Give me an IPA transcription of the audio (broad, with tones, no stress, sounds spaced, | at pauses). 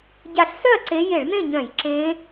ɟ a˧˩ ɬ s œ˥˨ ɐ̯ ǀ e˧˥ j e˧˩˧ ɭ n̪ ẽ˥˨ ɲ œ̃˧˩˧ j ǁ ẽ˧˥